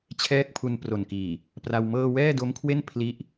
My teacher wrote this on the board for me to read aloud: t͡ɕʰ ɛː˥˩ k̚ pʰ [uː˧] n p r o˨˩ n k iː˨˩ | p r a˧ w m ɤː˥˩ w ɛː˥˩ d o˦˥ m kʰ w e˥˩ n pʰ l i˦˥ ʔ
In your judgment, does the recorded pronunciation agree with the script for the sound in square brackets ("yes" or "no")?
no